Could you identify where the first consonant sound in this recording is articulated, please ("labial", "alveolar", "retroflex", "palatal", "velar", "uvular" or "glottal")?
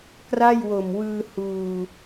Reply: velar